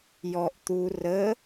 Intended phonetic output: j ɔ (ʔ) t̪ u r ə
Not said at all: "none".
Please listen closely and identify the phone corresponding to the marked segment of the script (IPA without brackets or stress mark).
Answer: ʔ